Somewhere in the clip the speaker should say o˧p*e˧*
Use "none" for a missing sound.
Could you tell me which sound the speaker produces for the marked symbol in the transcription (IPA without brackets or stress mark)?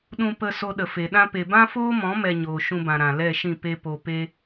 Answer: e˦